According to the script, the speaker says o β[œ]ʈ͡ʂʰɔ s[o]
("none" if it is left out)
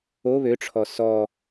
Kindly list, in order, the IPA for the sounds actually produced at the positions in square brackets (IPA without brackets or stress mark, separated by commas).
ø, ɔ